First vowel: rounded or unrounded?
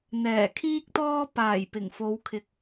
unrounded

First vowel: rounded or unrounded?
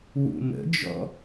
rounded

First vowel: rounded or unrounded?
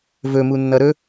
rounded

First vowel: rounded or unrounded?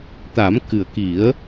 unrounded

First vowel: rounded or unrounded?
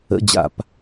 unrounded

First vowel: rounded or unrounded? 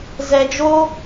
unrounded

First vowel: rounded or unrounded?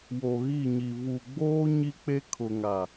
rounded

